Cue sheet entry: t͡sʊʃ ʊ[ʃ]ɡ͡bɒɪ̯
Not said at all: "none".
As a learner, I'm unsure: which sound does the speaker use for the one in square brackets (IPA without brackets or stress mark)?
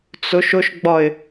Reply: ʃ